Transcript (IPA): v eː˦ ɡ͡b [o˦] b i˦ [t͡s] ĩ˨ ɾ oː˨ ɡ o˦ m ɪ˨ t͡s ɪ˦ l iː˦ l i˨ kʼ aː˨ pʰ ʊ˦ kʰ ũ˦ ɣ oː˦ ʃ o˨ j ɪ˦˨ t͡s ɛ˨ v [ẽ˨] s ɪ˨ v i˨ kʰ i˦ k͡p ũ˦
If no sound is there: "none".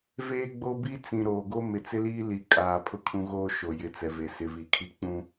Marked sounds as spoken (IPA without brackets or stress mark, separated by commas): o˦, t͡s, e˨